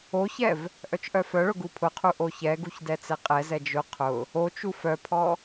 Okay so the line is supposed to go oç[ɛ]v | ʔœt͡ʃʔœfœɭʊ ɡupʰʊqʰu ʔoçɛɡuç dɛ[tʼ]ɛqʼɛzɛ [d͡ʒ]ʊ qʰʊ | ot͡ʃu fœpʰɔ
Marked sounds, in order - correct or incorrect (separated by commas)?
correct, incorrect, correct